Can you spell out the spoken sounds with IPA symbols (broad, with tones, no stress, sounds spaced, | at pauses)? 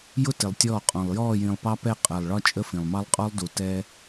j ʊ˦ t ɪ˨ lˠ tʲ ɔː˦˨ qʼ ɔ̃˨ lˠ j ɔː˦˨ j ĩ˨ lˠ p ɑ˦ p ɛ˦˨ qʼ ɜ˨ lˠ ɭ ɒ˦ t͡ʃʼ ə˦ f ĩ˨ lˠ m ɑ˦ lˠ qʼ ɔ˦ lˠ d u˨ t ɛː˦